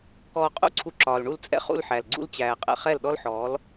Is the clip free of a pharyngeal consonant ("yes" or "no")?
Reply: no